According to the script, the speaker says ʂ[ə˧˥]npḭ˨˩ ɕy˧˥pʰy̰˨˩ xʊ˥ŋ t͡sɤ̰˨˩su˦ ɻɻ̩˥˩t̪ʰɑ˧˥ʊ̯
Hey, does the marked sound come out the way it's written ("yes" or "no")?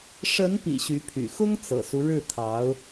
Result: yes